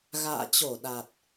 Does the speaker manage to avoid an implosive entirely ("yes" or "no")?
no